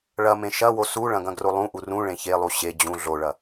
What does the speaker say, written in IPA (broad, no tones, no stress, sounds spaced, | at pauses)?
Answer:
ɭ ɐ m ẽ ʃ ɐ w o s u ɭ ɐ̃ ɡ ɐ̃ ɡ r o lˠ ũ ʔ u r ũ ɭ ẽ ç e lˠ u ɕ e d͡ʑ ũ ɮ o ɭ ɐ